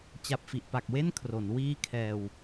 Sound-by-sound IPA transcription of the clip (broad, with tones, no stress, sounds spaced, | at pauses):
t͡ɕ a˨˩ p̚ f i˨˩ ʔ p a˨˩ k̚ w e˥˩ n kʰ r o˩˦ n w iː˦˥ kʰ ɛː˨˩ w